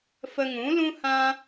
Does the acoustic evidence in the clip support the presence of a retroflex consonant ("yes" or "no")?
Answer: no